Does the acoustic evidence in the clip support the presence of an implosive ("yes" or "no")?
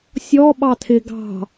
yes